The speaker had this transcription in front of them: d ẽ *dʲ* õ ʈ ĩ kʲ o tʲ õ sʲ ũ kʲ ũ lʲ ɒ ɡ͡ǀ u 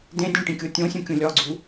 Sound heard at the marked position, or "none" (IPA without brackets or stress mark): dʲ